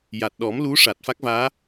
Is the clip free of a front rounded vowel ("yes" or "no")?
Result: yes